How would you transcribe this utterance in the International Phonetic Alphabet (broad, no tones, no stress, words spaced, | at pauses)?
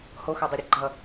hoxadˤeɾʲʌ ɡ͡ǃʌ